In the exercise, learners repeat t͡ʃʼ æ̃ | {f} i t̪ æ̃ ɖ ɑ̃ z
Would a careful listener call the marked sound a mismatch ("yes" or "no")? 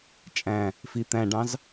no